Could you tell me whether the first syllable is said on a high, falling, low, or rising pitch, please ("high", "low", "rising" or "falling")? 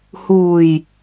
low